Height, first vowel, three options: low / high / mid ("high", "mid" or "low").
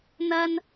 low